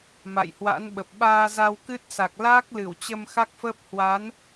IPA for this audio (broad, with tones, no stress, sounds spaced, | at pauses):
m a̰˧˨ j h w a̰˧˥ n ɓ ə˨˩ p̚ ɓ aː˧ z a˧ w k ɨ˦˥ t̚ s a˨˩ k̚ l aː˦˥ k̚ l ɨ˧˩ w t͡ɕ ə˧ m x a˦˥ k̚ f əː˦˥ p̚ h w a˨˦ n